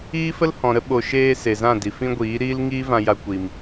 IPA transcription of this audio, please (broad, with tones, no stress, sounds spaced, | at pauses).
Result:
iː˦ f ə˦ l h ɔ̃˨ ɾ ə˦ ɓ o˨ ʃ eː˧ s e˨ z ã˦˨ d i˨ f ĩ˧ ɡʷ iː˨˦ ɾ iː˦ l ŋ iː˦ v ã˧ j a˧ kʷ i˨ m